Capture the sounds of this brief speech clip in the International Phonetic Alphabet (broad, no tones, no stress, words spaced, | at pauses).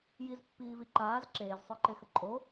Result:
jizpːiːvi ǃaːz ǁeːzsˤə˞ǃexə ǃʼo